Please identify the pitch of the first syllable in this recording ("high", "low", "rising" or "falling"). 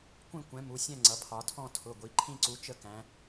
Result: falling